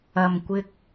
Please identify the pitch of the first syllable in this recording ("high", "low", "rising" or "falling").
low